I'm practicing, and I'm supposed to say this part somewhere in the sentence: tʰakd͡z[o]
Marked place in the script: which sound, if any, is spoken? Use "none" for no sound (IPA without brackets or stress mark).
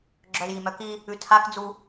u